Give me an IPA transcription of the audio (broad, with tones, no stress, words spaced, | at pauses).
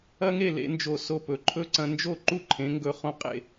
ɐ˥ŋe˥˧ lḛ˩˧nd͡ʒo˧˩ so˧ pɵ˩˧ǃʰɵ˥ ǀɐ̃˧nd͡ʒo˥˧ ǃu˥˧ǃʰẽ˩˧ŋɡɵ˧˩ χõ˧qʼḛ˧˩